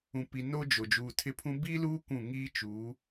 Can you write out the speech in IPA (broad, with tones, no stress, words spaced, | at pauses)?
ũ˨pi˨ no˦d͡ʒo˨ d͡ʒuː˨tʰɪ˦pʰũ˦ biː˦luː˦ kʷũ˦˨ ŋiː˦ t͡ʃuː˨˦